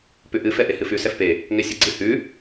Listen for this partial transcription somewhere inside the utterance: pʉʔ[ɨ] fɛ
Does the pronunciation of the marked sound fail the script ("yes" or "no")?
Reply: no